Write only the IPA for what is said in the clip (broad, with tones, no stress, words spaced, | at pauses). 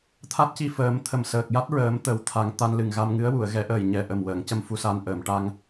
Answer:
t̪ʰa˦˥t̚ci˧fəː˨˩˦mt̪ʰə˨˩m səː˨˩k̚ja˦˥t̚ɹəː˨˩˦m t̪ə˨˩˦w t̪ʰa˨˩˦ŋt̪a˧n lɨ˨˩ŋɣa˧mŋɨ˧˥ə̯ wu˨˩˨ə̯ɣɛ˨˩˦ ʔəː˨˩jɲɛ˨˩ʔə˨˩m wəː˨˩˨ŋcə˧m fu˧sa˧n ʔəː˨˩˨mʈa˧ŋ